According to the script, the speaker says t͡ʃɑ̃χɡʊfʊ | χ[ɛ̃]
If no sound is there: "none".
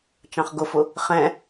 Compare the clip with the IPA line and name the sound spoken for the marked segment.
ɛ̃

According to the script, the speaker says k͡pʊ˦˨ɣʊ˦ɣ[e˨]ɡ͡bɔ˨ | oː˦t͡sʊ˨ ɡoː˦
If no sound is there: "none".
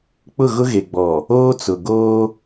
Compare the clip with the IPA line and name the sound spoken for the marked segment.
e˨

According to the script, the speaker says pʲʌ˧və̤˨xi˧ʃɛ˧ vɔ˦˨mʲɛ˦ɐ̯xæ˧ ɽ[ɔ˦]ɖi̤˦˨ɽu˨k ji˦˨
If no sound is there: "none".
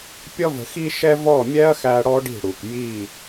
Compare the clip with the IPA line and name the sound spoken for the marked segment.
ɔ˦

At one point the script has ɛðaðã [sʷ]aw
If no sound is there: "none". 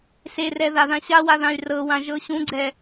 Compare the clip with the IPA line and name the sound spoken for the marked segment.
ɕ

